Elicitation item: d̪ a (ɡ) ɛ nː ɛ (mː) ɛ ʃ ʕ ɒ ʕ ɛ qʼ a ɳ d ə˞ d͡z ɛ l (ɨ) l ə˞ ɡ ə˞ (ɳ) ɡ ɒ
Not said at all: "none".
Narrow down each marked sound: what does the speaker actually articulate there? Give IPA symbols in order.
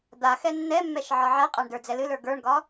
x, mː, ɨ, ɳ

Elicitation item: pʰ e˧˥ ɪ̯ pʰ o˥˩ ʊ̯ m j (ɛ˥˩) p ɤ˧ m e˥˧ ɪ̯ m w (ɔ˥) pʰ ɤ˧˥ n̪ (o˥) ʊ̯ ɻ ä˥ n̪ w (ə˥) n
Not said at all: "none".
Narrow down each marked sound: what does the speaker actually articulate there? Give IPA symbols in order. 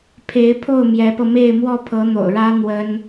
ɛ˧˥, ɔ˥˩, o̰˨˩, ə˥

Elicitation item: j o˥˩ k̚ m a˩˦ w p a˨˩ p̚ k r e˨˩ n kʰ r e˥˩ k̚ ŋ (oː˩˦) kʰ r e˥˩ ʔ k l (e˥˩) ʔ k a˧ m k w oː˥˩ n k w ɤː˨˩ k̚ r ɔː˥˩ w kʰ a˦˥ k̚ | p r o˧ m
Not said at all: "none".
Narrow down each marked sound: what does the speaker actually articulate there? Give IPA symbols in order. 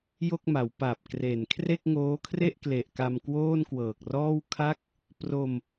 oː˦˥, e˨˩

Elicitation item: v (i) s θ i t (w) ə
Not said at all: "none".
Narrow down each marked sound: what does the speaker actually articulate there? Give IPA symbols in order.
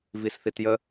i, j

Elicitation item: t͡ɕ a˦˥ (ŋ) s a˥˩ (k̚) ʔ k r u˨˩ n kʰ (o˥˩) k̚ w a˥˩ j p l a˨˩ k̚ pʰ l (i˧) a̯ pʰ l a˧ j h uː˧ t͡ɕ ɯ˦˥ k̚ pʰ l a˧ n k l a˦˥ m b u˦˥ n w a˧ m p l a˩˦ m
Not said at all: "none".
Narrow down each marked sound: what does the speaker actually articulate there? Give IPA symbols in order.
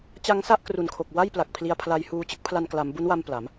ŋ, none, o˨˩, i˧

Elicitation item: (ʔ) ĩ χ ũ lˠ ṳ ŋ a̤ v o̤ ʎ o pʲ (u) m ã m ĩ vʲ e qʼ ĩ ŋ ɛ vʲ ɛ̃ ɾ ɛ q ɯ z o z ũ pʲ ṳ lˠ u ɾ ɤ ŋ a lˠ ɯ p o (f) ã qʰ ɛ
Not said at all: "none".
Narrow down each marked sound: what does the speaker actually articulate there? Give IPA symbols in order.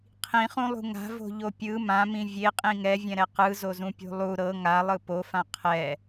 qʰ, ɯ, f

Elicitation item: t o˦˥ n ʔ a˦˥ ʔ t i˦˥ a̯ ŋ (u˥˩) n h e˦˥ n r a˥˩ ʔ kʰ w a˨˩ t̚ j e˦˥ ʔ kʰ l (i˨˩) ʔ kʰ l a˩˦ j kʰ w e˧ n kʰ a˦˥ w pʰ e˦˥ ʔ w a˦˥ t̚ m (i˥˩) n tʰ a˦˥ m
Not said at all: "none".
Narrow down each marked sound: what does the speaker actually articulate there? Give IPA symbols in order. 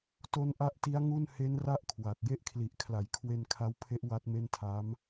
u˥˩, i˨˩, e˥˩

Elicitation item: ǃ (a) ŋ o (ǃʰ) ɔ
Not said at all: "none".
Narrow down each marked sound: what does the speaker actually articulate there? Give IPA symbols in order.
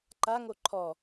a, ǃʰ

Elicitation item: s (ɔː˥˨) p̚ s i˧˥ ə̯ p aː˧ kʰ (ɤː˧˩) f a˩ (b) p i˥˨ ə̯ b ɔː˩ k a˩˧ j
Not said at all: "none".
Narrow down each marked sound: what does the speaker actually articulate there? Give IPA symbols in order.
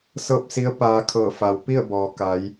ɤː˥˨, ɤː˧˩, w

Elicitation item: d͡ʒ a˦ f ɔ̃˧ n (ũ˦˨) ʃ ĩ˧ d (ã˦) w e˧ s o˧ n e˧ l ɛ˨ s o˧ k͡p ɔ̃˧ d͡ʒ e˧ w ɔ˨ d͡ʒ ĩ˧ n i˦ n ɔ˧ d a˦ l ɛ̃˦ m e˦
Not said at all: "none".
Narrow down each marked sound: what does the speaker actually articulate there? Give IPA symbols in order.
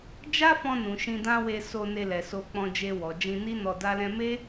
ũ˨, ã˦

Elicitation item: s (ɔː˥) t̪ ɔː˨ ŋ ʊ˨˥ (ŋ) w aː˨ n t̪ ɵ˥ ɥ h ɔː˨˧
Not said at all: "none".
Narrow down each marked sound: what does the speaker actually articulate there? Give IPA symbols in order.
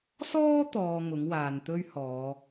ɔː˥, ŋ

